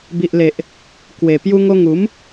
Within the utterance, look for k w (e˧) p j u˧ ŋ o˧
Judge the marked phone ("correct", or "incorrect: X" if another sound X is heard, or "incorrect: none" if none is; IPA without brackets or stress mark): incorrect: e˨˩